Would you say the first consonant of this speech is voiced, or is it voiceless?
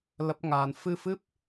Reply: voiced